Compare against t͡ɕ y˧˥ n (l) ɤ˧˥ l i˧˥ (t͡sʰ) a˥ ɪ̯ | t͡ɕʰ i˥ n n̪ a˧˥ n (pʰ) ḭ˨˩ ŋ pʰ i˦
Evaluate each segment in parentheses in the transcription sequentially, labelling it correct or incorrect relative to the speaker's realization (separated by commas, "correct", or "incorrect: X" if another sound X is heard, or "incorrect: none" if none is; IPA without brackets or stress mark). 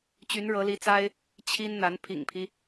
incorrect: ɻ, incorrect: t͡s, correct